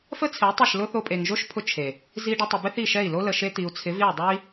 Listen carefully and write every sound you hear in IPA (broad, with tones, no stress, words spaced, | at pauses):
fə˦t͡sʰɪ˨˦u̯ tˤɪ˦˨ʃlʊ˦ θo˧pʼe˨ŋʒo˦˨ʃpʰʊ˧ t͡ʃʰe˨ | zi˧ɖə˧tˤɪ˨ bɪ˦θi˦˨ʃɛ˦˨i̯ lo˧lə˨ ʃe˧t̪i˨u̯t͡sʰɪ˨˦v i˦˨u̯dˤo˦i̯